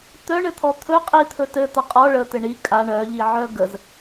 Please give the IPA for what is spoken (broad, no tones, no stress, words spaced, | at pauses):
t̪œɳɘt̪ʰɔ t̪ʰɵ qʼit̪ʰɵ tɘt̪a qʼɔ ɭət̪ɘ ɳi kʼa ɳœʎiʕœ ɡəz